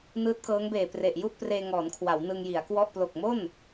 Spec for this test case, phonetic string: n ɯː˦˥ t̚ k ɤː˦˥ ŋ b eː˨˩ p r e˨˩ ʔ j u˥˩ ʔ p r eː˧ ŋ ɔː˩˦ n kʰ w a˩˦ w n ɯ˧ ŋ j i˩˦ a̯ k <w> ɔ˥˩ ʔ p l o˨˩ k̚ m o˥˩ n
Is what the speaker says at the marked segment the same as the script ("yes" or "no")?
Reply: yes